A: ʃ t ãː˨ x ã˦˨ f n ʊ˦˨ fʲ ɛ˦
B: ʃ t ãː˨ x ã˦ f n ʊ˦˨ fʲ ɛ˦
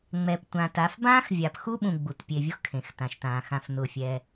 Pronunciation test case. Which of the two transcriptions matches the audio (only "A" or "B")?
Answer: A